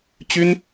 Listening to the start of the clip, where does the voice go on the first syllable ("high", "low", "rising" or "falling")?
high